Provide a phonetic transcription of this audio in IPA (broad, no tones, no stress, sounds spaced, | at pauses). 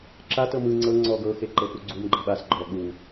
ǁ a t ɤ m ɯ ŋ͡ǀ ɤ ŋ͡ǀ ɔ ɡ ɤ x e ǃ ɤ p u ɡ͡ǀ u m ɡ͡ǃ ɤ ɓ a s ɡ͡ǃ ɔ ɠ u